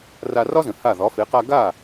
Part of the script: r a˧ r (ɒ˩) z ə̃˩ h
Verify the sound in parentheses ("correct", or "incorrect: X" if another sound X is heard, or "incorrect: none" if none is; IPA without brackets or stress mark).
incorrect: ɒ˥